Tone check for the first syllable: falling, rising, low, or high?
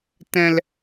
low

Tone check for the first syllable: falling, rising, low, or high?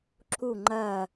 falling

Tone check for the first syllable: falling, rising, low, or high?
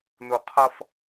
low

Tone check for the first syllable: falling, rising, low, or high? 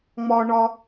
high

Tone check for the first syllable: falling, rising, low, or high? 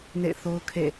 falling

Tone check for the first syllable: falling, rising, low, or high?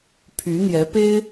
rising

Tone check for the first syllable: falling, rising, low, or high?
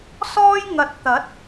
high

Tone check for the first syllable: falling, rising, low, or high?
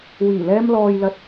low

